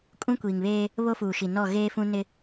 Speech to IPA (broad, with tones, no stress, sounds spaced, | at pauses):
kʼ ũ˦ kʷ iː˨ ŋ β eː˦ | β o˦ f uː˨ ʃ i˨ n ɔ˦˨ ɣ eː˦ f ũ˦ n ɪ˦